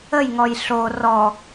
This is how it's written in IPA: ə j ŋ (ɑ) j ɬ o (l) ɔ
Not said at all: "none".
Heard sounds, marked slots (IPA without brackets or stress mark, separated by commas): ɔ, r